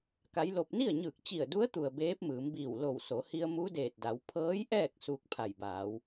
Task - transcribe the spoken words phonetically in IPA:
k a˧˥ j l o˧ p̚ n i˥˨ ə̯ ɲ ɯː˧˩ k̚ t͡ɕ i˧˩ ə̯ d u˧˥ ə̯ t̪ u˩ ə̯ b eː˧˥ p̚ m ɯː˩˧ m b iː˧˩ w l o˧˩ w s o˩˧ h i˧ ə̯ m u˧˥ d eː˧˩ t̚ d a˩˧ w pʰ ɤː˧˥ j ʔ ɛː˥˨ k̚ s uː˧ k̚ pʰ a˧˩ j b aː˩˧ w

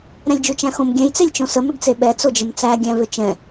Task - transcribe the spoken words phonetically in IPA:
ɾ ɛ̃ lʲ d͡ʒ u t͡ʃ æ̃ x õ m ɡʲ ɛ̃ j t͡s e lʲ t͡ʃ õ s ə m ʏ ɡ t͡s e ɓ ɛ t͡s o d͡ʒ ə m t͡s æ ɡʲ æ̃ v ʏ t͡ʃ ɛ̃

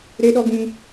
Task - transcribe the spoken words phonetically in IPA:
ɾ e˦ ɗ ɔ˦ ɡ ĩ˦

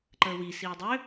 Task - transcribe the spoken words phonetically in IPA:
ǃ əː w i s iː dˤ ø

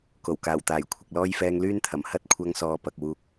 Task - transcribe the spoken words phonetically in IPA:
k o˨˩ w k aː˨˩ w t̪ aː˨˩ j kʷʰ ɪ˨ k̚ l ɔː˥ j f ɛː˧ ŋ l yː˥ n t̪ʰ ɐ˨˩ m h ɐ˥ t̚ kʷʰ ɐ˧ ŋ s ɔː˨ p ɐ˨ k̚ w uː˧ k̚

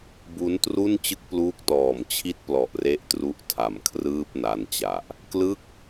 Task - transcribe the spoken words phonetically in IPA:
b u˦˥ n t r u˥˩ n t͡ɕ ɯ˥˩ k̚ p l uː˦˥ k̚ t ɔː˨˩ m t͡ɕʰ i˦˥ t̚ p l ɔ˨˩ ʔ r e˦˥ ʔ t r u˦˥ ʔ tʰ a˨˩ m kʰ r ɯː˥˩ p̚ n a˧ n t͡ɕ a˨˩ ʔ | k l ɯ˥˩ k̚

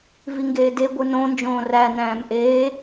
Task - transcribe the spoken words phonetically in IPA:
v i ŋ ɡ eː d e ɡʷ ɨ n õ n d͡ʒ õː r æ n æ̃ː m ʔ eː

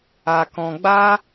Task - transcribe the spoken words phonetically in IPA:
a˧ k ɔ̃˧ ɡ͡b a˦

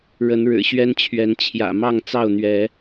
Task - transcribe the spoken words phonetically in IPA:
ɻ ə˨˦ n ɻ ɻ̩˨˩ ɕ ɥ ɛ˦ n t͡ɕʰ ɥ ɛ˨˦ n t͡ɕʰ j ä̰˨˩ m ɑ˥˨ ŋ t͡s ɑ˥˨ ʊ̯ n̪ ɥ ɛ˨˦

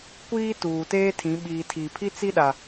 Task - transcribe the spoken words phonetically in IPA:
kʷ iː˦ t uː˨ t eː˦ tʰ ĩ˨˦ ɓ iː˨ tʰ i˨ pʰ i˦ t͡s i˦ ɗ a˨

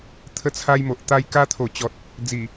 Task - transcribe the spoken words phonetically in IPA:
t̪ʰ ə˧ t͡sʰ a˧ j m o˨ ʔ t̪ a˦ j k a˧ t̪ʰ o˨˩ t͡ɕ ɔ˨ t̚ | d͡z i˨˩

